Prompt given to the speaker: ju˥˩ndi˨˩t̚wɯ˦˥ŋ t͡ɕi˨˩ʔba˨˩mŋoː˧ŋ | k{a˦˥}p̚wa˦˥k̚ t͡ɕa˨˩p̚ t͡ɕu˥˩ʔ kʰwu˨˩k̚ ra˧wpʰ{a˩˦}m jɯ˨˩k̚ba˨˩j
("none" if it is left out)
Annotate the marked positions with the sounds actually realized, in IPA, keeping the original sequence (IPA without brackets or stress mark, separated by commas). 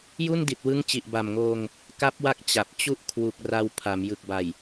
a˦˥, a˩˦